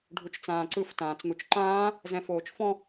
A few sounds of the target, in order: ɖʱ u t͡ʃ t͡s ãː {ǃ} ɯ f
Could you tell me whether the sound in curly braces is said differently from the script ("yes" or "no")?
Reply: yes